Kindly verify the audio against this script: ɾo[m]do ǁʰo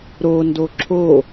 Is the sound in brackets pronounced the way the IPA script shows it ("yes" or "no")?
no